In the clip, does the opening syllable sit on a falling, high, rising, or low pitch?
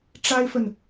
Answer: high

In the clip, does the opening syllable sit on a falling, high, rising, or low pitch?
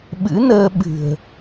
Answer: rising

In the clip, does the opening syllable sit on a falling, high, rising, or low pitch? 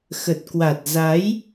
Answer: low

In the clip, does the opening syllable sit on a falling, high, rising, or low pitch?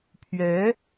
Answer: rising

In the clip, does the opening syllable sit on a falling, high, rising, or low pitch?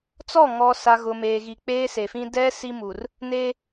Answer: falling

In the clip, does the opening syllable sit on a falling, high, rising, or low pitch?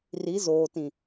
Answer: rising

